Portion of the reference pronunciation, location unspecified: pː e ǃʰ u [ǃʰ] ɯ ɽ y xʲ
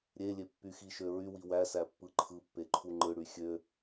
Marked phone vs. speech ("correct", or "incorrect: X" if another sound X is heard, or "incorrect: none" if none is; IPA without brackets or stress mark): incorrect: ŋ͡ǃ